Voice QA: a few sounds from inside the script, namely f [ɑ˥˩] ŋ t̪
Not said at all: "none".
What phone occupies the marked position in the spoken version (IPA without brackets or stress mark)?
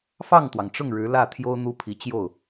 ɑ˥˩